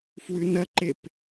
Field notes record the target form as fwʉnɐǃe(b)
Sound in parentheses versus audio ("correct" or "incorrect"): incorrect